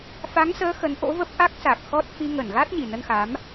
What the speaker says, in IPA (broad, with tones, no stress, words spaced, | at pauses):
fa˨˦ŋsəː˨˦ xə˨˦nʔo̰˧˥və˦˥p̚ ʔa˦˥k̚sa˨˩k̚ xɔ˦˥t̚ fi˧ŋə˧˩n ɣaː˦˥t̚ɲi˨˩nə˧nxa˨˦m